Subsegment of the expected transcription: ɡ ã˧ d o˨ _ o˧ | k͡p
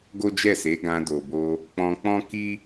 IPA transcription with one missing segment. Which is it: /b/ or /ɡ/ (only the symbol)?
b